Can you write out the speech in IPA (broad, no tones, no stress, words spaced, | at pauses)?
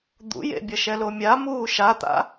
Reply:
d̪ṵjḛbʲʌ ʃɛlomʲa muːʃat̪a̰